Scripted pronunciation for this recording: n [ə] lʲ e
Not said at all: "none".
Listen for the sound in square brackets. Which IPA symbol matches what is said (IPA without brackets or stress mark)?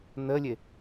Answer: ə